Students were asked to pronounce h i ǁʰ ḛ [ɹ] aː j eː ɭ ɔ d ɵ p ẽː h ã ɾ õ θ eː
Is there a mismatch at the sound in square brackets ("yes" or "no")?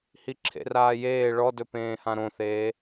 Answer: yes